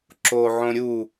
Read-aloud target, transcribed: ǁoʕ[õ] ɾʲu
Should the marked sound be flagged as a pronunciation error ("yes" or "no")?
no